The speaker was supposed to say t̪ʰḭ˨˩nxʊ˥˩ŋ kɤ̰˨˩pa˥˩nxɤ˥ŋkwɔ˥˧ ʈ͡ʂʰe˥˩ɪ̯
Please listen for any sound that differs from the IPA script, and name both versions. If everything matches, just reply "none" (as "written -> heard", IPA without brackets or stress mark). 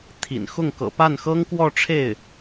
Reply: none